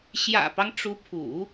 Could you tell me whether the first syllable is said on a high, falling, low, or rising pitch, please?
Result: low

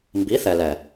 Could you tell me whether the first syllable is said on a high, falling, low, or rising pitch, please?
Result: rising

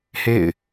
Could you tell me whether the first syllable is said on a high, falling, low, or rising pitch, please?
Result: falling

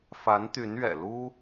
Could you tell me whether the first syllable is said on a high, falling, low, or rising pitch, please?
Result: rising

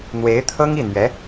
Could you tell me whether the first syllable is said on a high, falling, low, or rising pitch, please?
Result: rising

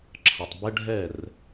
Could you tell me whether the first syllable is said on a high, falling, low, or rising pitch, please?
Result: low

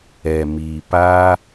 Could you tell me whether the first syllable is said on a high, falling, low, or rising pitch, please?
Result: low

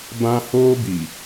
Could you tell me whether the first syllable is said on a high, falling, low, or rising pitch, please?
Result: high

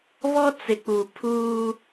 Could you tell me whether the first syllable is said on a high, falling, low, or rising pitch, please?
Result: high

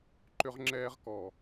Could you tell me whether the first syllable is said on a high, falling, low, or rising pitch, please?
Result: high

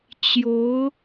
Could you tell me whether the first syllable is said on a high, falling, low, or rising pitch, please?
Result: rising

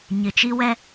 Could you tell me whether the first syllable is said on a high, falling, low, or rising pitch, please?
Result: low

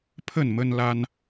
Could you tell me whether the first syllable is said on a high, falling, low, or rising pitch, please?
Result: falling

